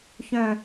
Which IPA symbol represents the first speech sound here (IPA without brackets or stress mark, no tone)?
ç